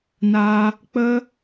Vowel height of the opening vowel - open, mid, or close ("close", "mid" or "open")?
open